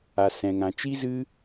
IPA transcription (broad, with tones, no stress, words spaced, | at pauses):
a˨sɛ̃˨ŋã˨ t͡ʃi˦zɨ˦